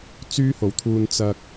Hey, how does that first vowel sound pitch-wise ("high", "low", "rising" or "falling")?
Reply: high